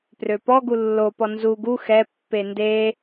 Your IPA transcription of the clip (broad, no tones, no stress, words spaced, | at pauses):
prøpɔɡu lːopɔ nzu ɡu xɛpːe nde